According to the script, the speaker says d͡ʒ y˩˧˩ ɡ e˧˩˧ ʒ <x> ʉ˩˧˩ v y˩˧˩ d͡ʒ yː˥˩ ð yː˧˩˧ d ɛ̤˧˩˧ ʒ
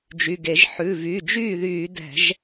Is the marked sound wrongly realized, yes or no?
yes